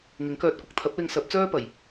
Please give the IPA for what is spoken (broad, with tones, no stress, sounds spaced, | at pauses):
ŋ ɪ˨˥ ŋ k œː˧ t̚ kʷ ɪ˧ k̚ t̪ʰ ɐ˨˥ p̚ l ɪ˧ ŋ s ɐ˨˥ p̚ t͡s œː˥ p ɐ˨˩ j